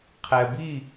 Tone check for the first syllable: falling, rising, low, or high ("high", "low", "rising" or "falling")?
low